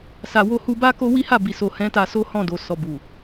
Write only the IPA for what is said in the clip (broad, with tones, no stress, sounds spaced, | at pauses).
s a˨ w o˧ h u˧ b a˦ k o˦ w i˦ h a˦˨ b i˨ s o˨ h ɛ̃˨˦ t a˧ s o˦ h ɔ̃˦˨ d o˨ s ɔ˨ b u˨